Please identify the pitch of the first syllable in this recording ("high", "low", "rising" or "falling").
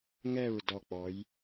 falling